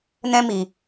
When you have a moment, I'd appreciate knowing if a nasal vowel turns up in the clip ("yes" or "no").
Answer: yes